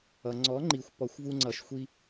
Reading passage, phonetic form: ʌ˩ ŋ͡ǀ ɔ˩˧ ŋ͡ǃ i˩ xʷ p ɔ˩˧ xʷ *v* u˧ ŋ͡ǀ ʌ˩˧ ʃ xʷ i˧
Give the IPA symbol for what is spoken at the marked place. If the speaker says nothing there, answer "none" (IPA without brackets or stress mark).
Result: v